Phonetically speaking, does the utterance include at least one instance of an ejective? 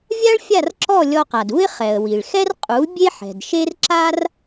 yes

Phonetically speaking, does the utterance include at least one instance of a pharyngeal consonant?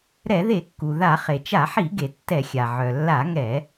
yes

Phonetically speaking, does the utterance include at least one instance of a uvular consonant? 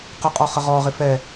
yes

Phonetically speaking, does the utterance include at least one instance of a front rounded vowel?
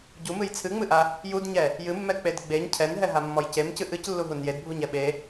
no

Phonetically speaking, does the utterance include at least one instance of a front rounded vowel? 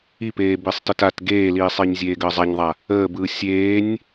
no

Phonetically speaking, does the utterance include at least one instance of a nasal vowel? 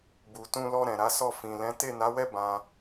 yes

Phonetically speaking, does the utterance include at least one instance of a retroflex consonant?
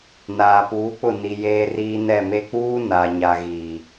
no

